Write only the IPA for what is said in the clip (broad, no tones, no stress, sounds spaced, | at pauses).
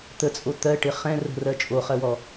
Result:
t̪ ə t͡sʼ o t̪ ɜ ʈ ɪ χ ɛ̃ r ə̤ r ɜ t͡ʃʼ o χ ɜ w ɔ